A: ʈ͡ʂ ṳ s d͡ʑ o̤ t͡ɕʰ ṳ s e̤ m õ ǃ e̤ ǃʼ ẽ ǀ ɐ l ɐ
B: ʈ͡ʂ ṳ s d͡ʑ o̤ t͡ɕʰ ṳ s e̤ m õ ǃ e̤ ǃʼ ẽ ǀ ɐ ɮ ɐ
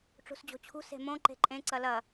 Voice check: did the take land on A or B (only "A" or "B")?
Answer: A